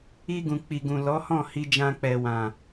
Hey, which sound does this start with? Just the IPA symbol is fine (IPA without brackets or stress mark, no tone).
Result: i